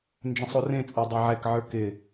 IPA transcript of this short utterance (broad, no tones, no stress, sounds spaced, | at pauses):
n d͡ʒ ə̃ sˤ o r ẽ t͡sʼ ə˞ dˤ e ʕ ɛ k ʕ ə˞ k ɪ